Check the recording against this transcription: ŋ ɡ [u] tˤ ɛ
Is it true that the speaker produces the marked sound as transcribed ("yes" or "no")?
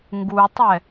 yes